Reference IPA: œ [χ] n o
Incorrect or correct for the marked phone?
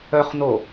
correct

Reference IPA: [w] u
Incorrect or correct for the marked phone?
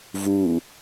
incorrect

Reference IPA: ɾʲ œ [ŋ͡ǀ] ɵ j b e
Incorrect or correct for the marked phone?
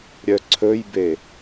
incorrect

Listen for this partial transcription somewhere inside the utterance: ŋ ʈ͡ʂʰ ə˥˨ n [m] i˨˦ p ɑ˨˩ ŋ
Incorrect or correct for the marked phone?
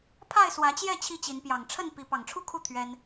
incorrect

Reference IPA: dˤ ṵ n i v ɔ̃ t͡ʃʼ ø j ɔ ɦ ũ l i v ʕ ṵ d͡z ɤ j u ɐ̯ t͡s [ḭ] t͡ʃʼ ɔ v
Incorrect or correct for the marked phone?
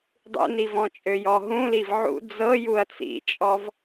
correct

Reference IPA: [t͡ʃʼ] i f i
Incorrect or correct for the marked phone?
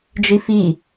incorrect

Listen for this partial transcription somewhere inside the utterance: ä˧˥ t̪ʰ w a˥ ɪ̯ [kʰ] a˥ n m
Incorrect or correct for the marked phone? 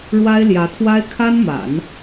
correct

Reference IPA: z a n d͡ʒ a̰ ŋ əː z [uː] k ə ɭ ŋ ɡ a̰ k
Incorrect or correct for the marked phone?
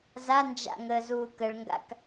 correct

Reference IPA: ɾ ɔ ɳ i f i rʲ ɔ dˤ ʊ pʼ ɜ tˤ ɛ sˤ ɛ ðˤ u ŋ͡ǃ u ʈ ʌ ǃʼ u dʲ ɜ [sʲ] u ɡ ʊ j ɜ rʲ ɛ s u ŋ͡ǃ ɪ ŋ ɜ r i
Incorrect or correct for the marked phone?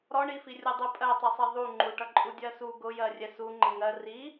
incorrect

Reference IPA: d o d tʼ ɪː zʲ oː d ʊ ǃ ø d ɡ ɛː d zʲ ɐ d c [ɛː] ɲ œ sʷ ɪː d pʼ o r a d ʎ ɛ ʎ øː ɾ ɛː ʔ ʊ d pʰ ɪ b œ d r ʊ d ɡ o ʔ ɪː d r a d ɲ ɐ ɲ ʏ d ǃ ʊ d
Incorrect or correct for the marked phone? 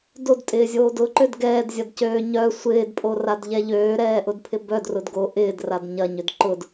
incorrect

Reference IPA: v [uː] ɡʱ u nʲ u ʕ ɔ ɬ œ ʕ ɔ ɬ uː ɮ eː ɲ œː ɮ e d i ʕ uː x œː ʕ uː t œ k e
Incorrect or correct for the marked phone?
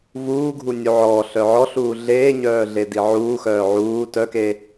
correct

